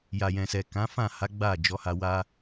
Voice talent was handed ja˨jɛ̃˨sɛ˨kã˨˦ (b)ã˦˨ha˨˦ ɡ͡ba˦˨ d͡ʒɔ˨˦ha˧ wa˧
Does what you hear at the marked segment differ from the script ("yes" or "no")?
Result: yes